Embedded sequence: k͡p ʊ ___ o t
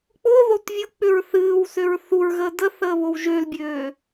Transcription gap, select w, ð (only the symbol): ð